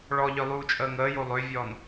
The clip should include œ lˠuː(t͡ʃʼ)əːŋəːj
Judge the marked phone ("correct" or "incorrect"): correct